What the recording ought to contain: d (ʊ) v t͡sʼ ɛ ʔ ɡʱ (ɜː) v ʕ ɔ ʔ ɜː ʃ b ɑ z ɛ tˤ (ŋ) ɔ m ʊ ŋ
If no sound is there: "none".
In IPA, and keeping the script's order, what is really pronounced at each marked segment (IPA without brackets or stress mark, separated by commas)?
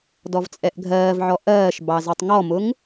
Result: ɔ, ɜː, ŋ